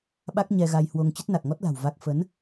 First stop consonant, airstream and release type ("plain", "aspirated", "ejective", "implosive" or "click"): implosive